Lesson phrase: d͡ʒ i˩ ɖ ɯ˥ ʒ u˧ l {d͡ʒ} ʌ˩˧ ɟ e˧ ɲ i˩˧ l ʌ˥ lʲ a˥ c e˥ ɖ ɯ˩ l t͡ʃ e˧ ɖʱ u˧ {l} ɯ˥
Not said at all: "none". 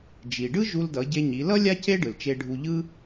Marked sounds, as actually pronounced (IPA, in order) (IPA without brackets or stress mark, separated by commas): d, ʎ